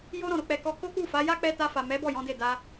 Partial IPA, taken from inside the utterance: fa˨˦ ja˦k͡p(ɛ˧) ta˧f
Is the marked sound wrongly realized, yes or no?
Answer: no